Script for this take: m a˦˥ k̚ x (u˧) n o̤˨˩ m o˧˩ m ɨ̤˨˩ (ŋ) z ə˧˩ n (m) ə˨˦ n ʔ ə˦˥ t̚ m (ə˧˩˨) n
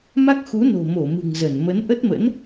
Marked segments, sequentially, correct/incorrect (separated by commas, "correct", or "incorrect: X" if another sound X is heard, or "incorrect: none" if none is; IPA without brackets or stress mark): incorrect: u˨˦, correct, correct, incorrect: ə̰˧˥